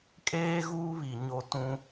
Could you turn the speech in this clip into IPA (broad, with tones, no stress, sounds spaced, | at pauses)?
kʼ eː˦ ɣ uː˦ β i˨ ɲ o˦ t ũ˦